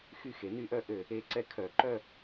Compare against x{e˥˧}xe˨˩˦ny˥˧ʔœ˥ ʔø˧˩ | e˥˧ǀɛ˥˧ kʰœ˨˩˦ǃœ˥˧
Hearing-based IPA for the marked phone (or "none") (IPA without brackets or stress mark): y˥˧